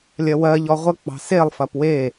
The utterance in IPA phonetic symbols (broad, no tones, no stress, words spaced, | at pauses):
lʲɐwɜʎɔ ʁʷək͡pɑ̤ selˠfɐp we